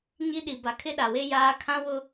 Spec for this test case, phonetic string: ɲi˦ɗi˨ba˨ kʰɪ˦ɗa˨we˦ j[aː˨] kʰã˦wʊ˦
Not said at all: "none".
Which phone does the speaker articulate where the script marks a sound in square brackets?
aː˦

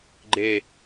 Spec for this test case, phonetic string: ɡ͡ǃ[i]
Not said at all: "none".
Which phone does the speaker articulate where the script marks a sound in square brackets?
e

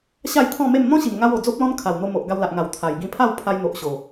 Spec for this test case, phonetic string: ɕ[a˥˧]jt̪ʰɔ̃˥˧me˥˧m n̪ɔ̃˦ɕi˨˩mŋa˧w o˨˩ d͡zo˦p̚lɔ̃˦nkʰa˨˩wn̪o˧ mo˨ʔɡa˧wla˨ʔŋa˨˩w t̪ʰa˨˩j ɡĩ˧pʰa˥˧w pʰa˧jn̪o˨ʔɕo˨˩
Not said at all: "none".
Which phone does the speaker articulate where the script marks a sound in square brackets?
a˥˧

